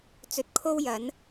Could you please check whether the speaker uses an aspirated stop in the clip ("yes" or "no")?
yes